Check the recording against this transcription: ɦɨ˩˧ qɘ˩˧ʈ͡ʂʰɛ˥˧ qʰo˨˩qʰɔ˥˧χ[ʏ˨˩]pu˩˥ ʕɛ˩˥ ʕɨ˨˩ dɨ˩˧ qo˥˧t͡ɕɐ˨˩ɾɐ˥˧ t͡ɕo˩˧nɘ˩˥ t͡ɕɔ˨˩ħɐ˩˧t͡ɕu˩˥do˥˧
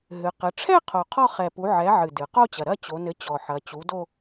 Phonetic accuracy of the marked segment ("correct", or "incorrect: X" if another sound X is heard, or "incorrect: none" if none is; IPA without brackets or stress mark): incorrect: ɛ˨˩